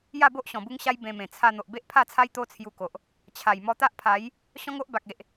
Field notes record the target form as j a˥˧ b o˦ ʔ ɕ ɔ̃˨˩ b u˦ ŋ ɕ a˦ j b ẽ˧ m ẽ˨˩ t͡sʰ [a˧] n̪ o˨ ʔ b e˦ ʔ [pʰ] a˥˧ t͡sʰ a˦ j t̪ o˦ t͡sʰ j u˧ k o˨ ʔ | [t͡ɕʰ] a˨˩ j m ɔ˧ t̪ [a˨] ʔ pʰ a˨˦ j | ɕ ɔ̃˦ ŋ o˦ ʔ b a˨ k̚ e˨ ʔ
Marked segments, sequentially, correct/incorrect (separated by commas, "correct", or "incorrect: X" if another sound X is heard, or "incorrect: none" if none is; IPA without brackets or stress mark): correct, correct, correct, incorrect: a˦